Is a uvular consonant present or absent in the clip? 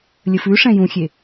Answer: absent